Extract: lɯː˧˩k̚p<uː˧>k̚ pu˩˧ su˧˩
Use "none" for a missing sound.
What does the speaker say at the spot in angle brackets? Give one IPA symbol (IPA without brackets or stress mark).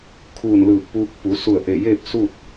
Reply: uː˧